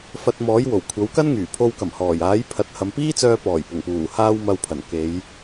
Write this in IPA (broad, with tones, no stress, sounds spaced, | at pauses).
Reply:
f ɐ˧ t̚ m ɔː˨˥ j w o˨˩ w kʷʰ ɐ˨˥ w k ɐ˥ n ŋ yː˨˩ pʰ o˧ w k ɐ˨˩ m h ɔː˨˩ j aː˨˥ j pʰ ɐ˨˥ t̚ h ɐ˨˧ m p iː˥ t͡s œː˧ p ɔː˨˩ j p ʊ˨˩ ŋ p uː˨˩ h aː˧ w m ɐ˨ w pʰ ɐ˨˩ n k e˨˧ j